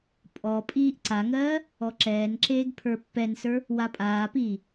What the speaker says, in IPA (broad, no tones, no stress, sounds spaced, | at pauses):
pʼ ɔ pʼ iː ʔ ǀ a ŋ ɜː | ɔ ǁ ɛː n ǁ eː ɡ pʰ ə˞ pː ɛ n s ə˞ | w a pʼ aː p iː